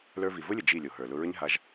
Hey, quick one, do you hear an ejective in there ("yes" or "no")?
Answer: no